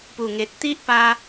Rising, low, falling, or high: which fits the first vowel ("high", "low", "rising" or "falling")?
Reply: low